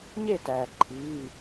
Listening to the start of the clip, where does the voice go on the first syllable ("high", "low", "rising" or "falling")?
falling